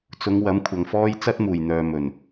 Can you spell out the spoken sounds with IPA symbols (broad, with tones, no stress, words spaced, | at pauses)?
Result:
t͡sʊ˨˧ŋ wɐ˨˥mkʷʰɐ˨ŋfɔː˥j t͡sɐ˥t̚muː˨˩jn̪œː˨ mɵ˨˩n